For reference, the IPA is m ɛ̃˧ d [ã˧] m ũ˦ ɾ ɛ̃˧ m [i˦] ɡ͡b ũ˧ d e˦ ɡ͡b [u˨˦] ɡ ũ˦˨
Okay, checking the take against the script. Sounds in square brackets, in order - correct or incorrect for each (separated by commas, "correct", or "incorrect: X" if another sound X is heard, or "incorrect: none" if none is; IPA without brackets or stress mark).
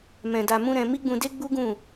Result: incorrect: a˧, correct, incorrect: u˦